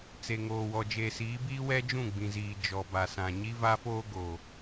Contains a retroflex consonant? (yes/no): no